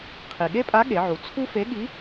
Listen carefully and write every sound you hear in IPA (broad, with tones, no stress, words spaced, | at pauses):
qʰi˩ɠe˥pʼa˧˥ ɠe˩˧ʕu˩˧ t͡sʰu˥fe˧˥ɠi˧˥